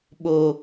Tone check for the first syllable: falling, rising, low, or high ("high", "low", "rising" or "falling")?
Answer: low